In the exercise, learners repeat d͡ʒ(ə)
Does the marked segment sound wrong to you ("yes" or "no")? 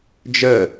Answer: no